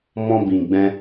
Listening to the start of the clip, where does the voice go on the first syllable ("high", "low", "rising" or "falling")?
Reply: high